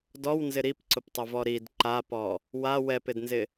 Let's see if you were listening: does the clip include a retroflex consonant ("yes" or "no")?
no